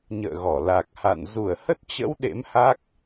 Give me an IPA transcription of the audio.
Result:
ɲ ə̰ː˧˨ ɣ ɔ˧˩ l a˨˩ k̚ h a̰˧˨ n z u˧˩ ə̯ h ə˦˥ t̚ t͡ɕ ə̰˧˥ w ɗ ḛ˧˥ m h a˦˥ k̚

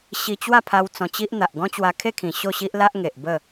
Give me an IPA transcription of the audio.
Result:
ɕ i˧ t͡ɕ w a˥˧ pʰ a˧ w t͡s ɔ̃˧ t͡ɕ i˦ ʔ n̪ a˨ ʔ ɡ ɔ̃˦ t͡ɕ w a˧ kʰ e˥˧ kʰ ĩ˨˩ ɕ o˥˧ ɕ i˦ ʔ l a˦ ʔ ŋ e˨ ʔ b ə˥˧

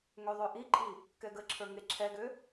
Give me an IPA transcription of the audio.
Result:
ŋ ø ðˤ ø ʔ i ǃʼ i | k ɛ ɡ ə ǁʰ ə˞ ŋ e ǁʰ ɛ ɡ ø

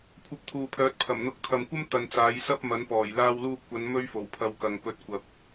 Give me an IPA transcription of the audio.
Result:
kʷʰ ɐ˧ p̚ t̪ʰ uː˨ pʰ œː˨˥ t̚ pʰ ɐ˨˩ m n̪ ʊ˨˥ k̚ t̪ʰ ɐ˨ m kʷ ɐ˥ m t̪ ɐ˨ n t͡s aː˨˧ j s ɐ˥ p̚ m ɐ˨˥ n p ɔː˨˩ j l aː˧ w l uː˧ p̚ kʷ ɐ˨˧ n m ɵ˥ ɥ f o˨˩ w pʰ ɐ˧ w k ɐ˨ ŋ p ɵ˧ t̚ kʷ ɐ˨ p̚

